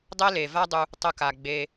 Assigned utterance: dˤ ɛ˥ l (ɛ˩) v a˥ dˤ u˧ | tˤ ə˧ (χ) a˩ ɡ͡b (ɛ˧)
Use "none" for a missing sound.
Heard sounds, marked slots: e˩, k, e˧

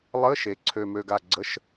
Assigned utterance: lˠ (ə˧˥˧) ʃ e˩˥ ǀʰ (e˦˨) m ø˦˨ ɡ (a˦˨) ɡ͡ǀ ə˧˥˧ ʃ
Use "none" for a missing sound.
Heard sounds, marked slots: ə˧˥˧, ø˦˨, a˦˨

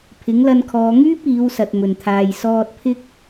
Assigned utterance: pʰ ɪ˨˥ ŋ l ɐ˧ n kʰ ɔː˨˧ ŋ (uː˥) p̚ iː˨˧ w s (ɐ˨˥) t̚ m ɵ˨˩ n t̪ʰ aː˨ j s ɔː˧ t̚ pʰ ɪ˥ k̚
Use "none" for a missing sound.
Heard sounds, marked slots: yː˥, ɐ˨

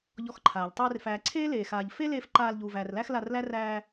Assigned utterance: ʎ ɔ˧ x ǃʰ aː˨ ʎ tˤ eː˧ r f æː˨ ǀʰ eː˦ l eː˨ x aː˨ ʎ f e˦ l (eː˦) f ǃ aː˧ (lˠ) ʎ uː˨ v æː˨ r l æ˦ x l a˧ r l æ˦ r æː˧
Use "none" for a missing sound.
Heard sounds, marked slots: eː˧, l

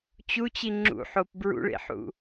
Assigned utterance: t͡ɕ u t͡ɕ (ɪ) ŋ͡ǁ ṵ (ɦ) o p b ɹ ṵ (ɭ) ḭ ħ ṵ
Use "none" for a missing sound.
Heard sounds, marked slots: i, ħ, ɭ

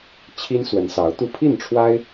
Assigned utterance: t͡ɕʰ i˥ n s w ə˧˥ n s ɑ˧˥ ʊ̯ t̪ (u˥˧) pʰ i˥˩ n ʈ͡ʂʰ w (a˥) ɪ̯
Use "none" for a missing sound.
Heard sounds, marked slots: u˥˧, a˥

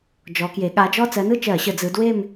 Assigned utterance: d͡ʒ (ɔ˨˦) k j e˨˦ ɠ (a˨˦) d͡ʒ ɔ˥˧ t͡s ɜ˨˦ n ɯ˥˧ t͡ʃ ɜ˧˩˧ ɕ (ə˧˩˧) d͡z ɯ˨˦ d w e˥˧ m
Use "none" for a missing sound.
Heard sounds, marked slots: ɔ˨˦, a˨˦, ə˧˩˧

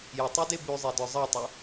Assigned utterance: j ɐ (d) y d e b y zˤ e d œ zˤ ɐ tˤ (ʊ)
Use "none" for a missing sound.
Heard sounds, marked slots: tˤ, ʊ

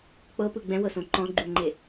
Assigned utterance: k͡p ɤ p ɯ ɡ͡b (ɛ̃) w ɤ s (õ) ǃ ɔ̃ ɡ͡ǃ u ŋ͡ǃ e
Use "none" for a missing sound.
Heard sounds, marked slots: ɛ̃, õ

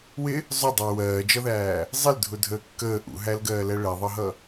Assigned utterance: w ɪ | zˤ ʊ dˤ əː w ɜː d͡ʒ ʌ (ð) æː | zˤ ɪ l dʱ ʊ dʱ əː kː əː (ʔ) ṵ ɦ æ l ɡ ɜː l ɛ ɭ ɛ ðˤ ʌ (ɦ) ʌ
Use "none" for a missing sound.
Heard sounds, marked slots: ð, ʔ, ɦ

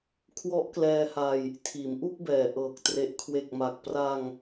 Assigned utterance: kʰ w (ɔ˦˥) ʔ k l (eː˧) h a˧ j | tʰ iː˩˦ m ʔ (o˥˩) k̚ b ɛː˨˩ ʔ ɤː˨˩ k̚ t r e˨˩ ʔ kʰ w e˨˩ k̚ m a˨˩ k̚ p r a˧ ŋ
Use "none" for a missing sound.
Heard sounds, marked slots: ɔ˦˥, ɛː˧, u˥˩

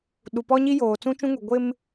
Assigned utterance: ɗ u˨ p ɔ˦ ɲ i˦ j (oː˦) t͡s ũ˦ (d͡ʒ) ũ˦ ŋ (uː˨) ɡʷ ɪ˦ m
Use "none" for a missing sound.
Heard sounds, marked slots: oː˨, t͡ʃ, u˨

